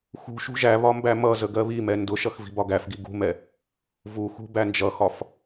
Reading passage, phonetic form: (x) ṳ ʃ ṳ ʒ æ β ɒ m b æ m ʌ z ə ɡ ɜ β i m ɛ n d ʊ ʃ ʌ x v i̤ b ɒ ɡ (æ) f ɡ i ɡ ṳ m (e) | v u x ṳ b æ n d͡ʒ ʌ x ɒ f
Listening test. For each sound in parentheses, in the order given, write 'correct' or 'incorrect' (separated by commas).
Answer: correct, correct, incorrect